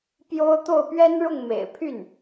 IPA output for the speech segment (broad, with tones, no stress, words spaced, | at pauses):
pjo˥ʊ̯ t̪o˥˩ʊ̯ pɥɛ˥nɻʊ˥˩ŋmḛ˨˩ɪ̯ pʰy˥˩n